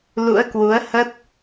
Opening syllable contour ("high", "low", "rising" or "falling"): rising